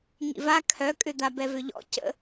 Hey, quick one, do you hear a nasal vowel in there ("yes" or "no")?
no